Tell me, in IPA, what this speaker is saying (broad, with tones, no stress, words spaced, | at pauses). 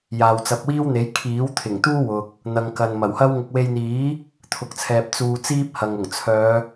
jaː˨wt͡sɐ˨p̚wiː˥wn̪e˨˥j kʰiː˨˥wt̪ʰɪ˨˩ŋt̪uː˥ wʊ˨k̚ | n̪ɐ˨ŋkɐ˨n mɐ˨˩whɐ˥wŋʊ˧k̚ we˧jn̪iː˨˥ | t̪ʰʊ˨˥k̚t͡sʰɛː˧p̚ t͡suː˧ t͡siː˥p̚hɐ˨ŋ ʊ˨˩ŋt͡sʰœː˨˧